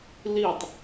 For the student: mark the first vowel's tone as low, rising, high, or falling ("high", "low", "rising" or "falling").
falling